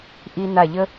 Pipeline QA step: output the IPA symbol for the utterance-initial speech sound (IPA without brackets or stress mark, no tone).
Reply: ʔ